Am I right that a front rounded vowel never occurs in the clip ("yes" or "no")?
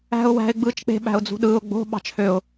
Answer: no